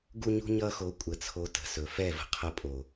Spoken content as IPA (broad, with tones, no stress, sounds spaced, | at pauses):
ɡ u˦ ɲ ṳ˦ ɲ ʌ˦ x o˧ kʷʼ ə˧ t͡sʰ o˧ t ə̤˨ s ɵ˨ f ɛ˦˨ v ə̤˧ qʰ ə˧ pʼ o˨